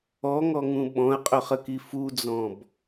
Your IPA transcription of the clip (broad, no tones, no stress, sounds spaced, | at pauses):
ɔ ŋ ɔ ŋ ũ ɓ ɔ̃ ɐ̯ qʼ ɵ χ ə k i f u d͡z ɔ̃ b